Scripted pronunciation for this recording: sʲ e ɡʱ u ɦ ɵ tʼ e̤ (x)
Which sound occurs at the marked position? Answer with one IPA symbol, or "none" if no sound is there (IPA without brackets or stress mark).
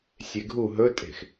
x